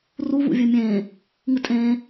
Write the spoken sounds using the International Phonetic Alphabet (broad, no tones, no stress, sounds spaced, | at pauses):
r u v ṵ vʲ ɵ mʲ ẽː | ŋ ɨ tʼ ẽː